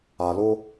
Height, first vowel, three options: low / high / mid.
low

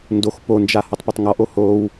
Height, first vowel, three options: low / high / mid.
mid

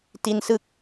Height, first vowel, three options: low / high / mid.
high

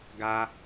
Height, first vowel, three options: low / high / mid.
low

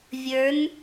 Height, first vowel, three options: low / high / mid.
mid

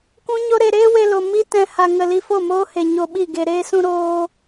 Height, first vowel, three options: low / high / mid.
high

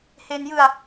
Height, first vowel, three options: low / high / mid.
mid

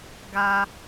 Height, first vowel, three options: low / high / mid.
low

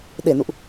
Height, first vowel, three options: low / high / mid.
mid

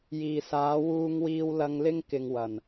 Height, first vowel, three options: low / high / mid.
high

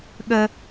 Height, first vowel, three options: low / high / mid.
mid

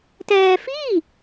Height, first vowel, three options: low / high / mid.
mid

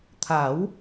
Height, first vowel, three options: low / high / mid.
low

